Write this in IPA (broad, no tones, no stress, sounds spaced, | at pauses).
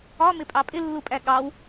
ɒ m ɪ pʼ ɑ pʼ ɪ lː u pʼ æ ɠ ɑ w